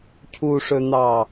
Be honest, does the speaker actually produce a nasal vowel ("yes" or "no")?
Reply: no